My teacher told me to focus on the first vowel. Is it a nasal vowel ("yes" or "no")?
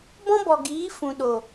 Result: yes